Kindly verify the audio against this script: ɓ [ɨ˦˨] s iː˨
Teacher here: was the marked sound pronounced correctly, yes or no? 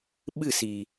yes